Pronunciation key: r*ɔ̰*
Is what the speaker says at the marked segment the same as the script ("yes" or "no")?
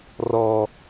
no